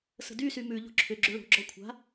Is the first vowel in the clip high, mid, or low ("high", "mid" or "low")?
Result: mid